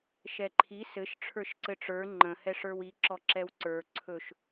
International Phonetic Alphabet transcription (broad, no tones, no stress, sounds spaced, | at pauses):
ʃ ɛ ǃʰ i s ɘ ʃ ʈ͡ʂʰ ə˞ ʃ ǀ ɘ ʈ͡ʂ ə˞ ŋ͡ǃ ə̃ h ɛ ʂ ə˞ w i ǁ ɔ ǁ ɛ w ǀ ə˞ ǀʰ ɵ ʃ